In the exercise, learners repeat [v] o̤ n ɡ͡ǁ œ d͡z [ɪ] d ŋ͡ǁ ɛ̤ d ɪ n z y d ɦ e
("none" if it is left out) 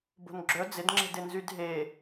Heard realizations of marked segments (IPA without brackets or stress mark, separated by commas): b, ɪ